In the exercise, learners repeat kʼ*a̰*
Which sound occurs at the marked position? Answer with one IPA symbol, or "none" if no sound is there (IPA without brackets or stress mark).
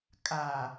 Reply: a